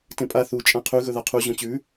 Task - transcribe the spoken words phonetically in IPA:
t ẽ pʼ a θ u t͡ʃʼ ã qʰ ʉ ɣ ɵ ð a qʰ u ʑ õ t͡ɕ ʉ

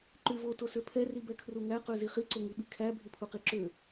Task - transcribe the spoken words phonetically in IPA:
ǃ y v o t o s ø pʰ ɛ r i b ɛ kʰ r u ŋ æ q ø z i χ i ǀ o ŋ i ɓ i kʰ æ bʱ i pʰ u q i ǁ ø

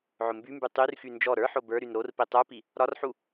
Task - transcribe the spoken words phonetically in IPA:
ʕ ʊ m b y m b y tˤ y r x y n d͡ʒ ɔ ɾ ə˞ ħ o b ə˞ ɾ y n ɾ o r p i tˤ ə˞ p i | ɾ ɒ r ħ u

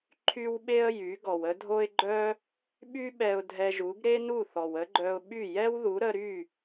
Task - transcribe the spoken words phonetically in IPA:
ǃʰ y˥ w ɓ e˥ ə̯ j y˩˥ ɡ ɔ˩ w ə˥ dʱ o˥ ɪ̯ ɡ͡ǃ œ˥ | ɓ y˥ ɓ ɛ˧ ʊ̯ dʱ ɛ˧ ʒ u˩˥ ɡ ɾ e˥ n u˥˩ θ ɔ˩ w ə˥ ɡ͡ǃ œ˧ ʊ̯ ɓ y˥˩ j ɛ˥ w ð u˩˥ ɾ ə˧ ɾ y˥˩

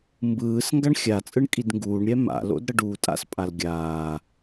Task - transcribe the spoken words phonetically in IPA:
m b ɯː s ŋ ɡ a ɳ xʲ a t͡sʼ ɯ ɳ kʼ i d ŋ ɡ uː ɳ ɾʲ ɛ m a̰ l o̰ d ɾ ʌ ɖ uː tʼ a̰ s pʼ a l ɡʲ aː

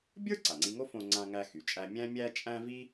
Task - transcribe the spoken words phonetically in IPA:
bʲ ə˞˥ ǀ a˩ ŋ͡ǀ i˧ ŋ o˥ f õ˧ ŋ͡ǀ ã˧ ŋ æ˧ x y˩ t͡ʃʼ æ˧ mʲ æ̃˥ mʲ æ˥ t͡ʃʼ æ̃˥ v i˥

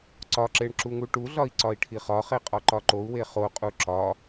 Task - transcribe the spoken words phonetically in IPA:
ǀ ɒ ǁ e ɳ ǁ u ŋ u ʈ u ɮ ɒ i̯ ǀ ɒ i̯ ʈʰ i χ ɒ χ e qʼ ɒ ǃ ɒ ǃ o u̯ w e χ o qʼ u ǁ ɒ

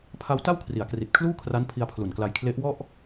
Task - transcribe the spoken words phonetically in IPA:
pʰ a˦˥ w t a˥˩ w kʰ r i˩˦ a̯ k r i˨˩ t̚ kʰ l uː˥˩ kʰ r a˦˥ n pʰ i˧ a̯ pʰ l u˨˩ n k l a˧ j kʰ l e˦˥ ʔ w ɔ˥˩ ʔ

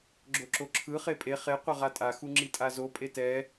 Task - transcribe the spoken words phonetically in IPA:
ɡ͡ǁ o ǁ o ǁʰ ɯ χ e pʼ e χ e qʷ ʌ ʁ a tʼ a x u ŋ͡ǁ i tʼ a z o pʼ e t ɛ

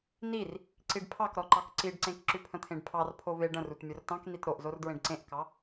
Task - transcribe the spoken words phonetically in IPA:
n i r | ǀ i ɖ pʰ ɑ k ɾ ɔ ǃ ɑ k ǀ i ɖ ǀ ẽ k ǁ ʉ pʰ ə̃ t̪ʰ ẽ ɖ pʰ ɑ r pʰ o v e ɖ ə̃ r u t mʲ o r t ɑ̃ k n i t ɾ o ʔ z o r d ɹ ẽ ɖ ǀ ẽ ʔ k ɑ

